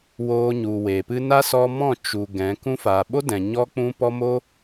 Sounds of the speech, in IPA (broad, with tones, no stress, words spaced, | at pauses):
woː˧ɲu˨we˨pɨ˦ na˦sɔ˧ mɔ̃˦˨t͡ʃu˨ ɡɛ̃˨˦ kũ˧faː˨ɓo˦dɛ̃˨ ɲɔ˦k͡pũ˦pɔ˦ mo˦